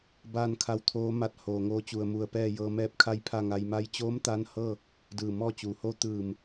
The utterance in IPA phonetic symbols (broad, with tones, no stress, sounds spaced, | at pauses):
b aː˥˨ n kʰ a˧˥ w t̪ʰ oː˧˥ m a˧˥ t̚ h oː˩ ŋ oː˧ t͡ɕ u˧˩ ə̯ m u˧˩ ə̯ p ɛː˥˨ j ɤː˧ m ɛː˥˨ p̚ kʰ a˥˨ j pʰ a˥˨ ŋ a˧ j m a˧ j t͡ɕ oː˧˥ m t̪ a˧˥ n h ɤː˥˨ | d ɯː˧˩ m ɔː˥˨ t͡ɕ uː˩ h o˧˥ t̪ ɯː˧˩ m